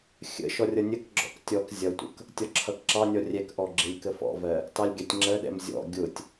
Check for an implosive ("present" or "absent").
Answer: present